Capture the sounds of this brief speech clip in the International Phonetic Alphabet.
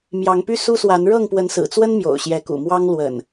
m j ɑ˨˦ ŋ p y˦ s u˦ s w a˨˦ n ɻ ɤ˥˨ ŋ p w ə˨˦ n s ɹ̩˨˩ t͡s w ə˦ n m j o̰˨˩ ʊ̯ ɕ j ɛ˨˦ k ṵ˨˩ m w ɑ˦ ŋ l w ə̰˨˩ n

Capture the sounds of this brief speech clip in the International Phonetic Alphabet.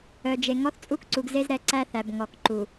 œ˨ d͡ʒ e˨ ŋ ɔ˦ θ t͡sʼ u˦ k ǀ u˨ ɡ z e˦ z ɾ ɛ˨ ǀ æ˦ θ æ˨ b ŋ ɔ˨ k ǃ u˨

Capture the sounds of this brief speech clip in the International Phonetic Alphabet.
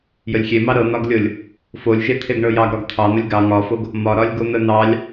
j ə lʲ xʲ e m ɑ ɾ ɤ n̪ ɒ ɡ lʲ ɤ lʲ | f o lʲ ʒ e t̪ʰ e ɡ ɳ ɤ j ɑ ɡ ɾ ɒ ɡ t̪ʰ ɑ n̪ ə lʲ ɡ ɑ ŋ ɒ f o ɡ | m ɒ ɾ ɒ lʲ ɡ o n̪ ə n̪ ɑ lʲ

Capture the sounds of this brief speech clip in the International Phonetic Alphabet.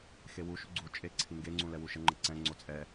x e w u ʃ u ɡ͡ǀ u t͡ʃʼ e ǀʰ i ŋ ɡ e ŋ͡ǀ ũ l ɛ w u ʃ ə ŋ͡ǃ ə ǀ ɛ̃ ŋ͡ǀ o t͡sʼ ɛ

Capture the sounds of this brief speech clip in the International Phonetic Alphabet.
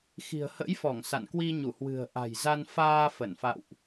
x i̤˨˩ ə̯ h ə̰˧˥ j f ɔ˧˩ ŋ s a̰˧˨ n k w i˧ ɲ u˧˩ h w ɨ̤˨˩ ə̯ ʔ a̤˨˩ j z a˧ n f aː˧ f ə˧˩ n f a̰˧˨ w ʔ

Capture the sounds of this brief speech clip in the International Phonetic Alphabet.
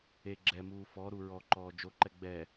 e ɡ͡ǁ ɛ m uː f ɔ ɾ u ɹ ɔ ǃ ɔː d͡ʒ o ǃ ɛ ɡ͡b ɛ

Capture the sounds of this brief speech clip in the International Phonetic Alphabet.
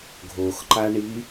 ɡʱ o x ǃ a ɳ i

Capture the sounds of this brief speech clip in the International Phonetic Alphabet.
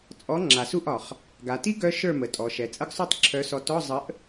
t͡sʼ ɔ˨˥ ŋ͡ǁ a˨˩ s u˥˨ ʔ ɒ˨˩ χ | ɡ a˩˧ t i˦˥ ɡ œ˦˥ ʃ ə˞˥˨ m ə˩˧ tʼ ɔ˩˧ ʃ ɛ˩˧ t͡sʼ ə˦˥ ɡ sˤ u˥˨ tˤ ǁʰ œ˨˥ s ɔ˨˥ t ɔ˧˥˧ zˤ ə˨˥ ʔ

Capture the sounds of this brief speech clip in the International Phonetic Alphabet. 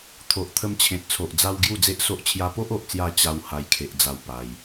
t̪ʰ o˨ ʔ t̪ʰ ə˧ m t͡ɕʰ ẽ˨ t̚ t͡sʰ o˨ ʔ d͡z a˧ w ɡ j u˥˧ d͡z e˦ ʔ s o˦ ʔ t͡ɕʰ j a˧ p o˦ ʔ o˨ ʔ t͡s j a˧ t͡ɕ a˧ w h a˧ j kʰ e˨ ʔ d͡z a˨˩ w p a˧ j

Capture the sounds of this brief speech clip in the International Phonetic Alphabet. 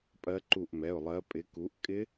pʼ ɜ˨˦ ǃ u˧˩ ʔ m ɛ˩˧˩ ʊ̯ lˠ ɜ˨˦ pʼ ɪ˨˦ k u˨˦ ʔ kʼ ɪ˦˥

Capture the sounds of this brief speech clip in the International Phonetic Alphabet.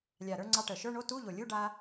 lʲ a˨˩ ɾ ə˞˧ ŋ͡ǀ ɑ˧ ʈ ə˨˩ ʃ ə˞˧˥˧ ɳ o˧˥˧ t u˧˥˧ ʎ o˨˩ lʲ u˧˥˧ ɖ a˧

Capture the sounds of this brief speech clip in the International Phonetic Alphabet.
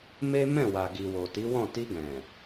m e˦ m ɛ̃˦˨ w a˨ ɡ i˨ w o˨ t i˨˦ w ɔ̃˦˨ t i˧ ɡ ɛ̃˨

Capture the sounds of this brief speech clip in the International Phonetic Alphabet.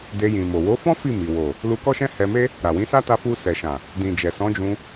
d e˧ j ĩ˨ m o˨ w o˨˦ f ɔ̃˦ f i˦˨ m i˨ w o˨ | l u˧ k ɔ˦ ʃ ɛ̃˦ h ɛ˧ m e˦ | ɾ a˨ w ĩ˨˦ s a˦ t a˧ f u˧ s ɛ˨ ʃ ã˨ | d ĩ˨ d͡ʒ ɛ˨ s ɔ̃˨˦ d͡ʒ ũ˧

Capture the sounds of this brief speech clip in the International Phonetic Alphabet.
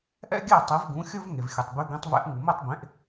ʔ ɛ̰˥ ɡʲ æ˥˩ tˤ e˩˥ v ɡ ũ˩˥ xʲ ɵ˥ v ŋ e˩ v xʲ ɵ˩ tˤ b y˩˥ ɡ ẽ˩˥ tˤ v ɛ̰˩˥ ʔ ŋ u˩ m ɛ˥˩ tˤ b ẽ˩˥ ʔ

